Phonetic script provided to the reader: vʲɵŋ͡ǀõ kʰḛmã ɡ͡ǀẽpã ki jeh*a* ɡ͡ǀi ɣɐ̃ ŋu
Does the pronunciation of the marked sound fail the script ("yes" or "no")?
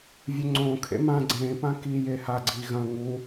no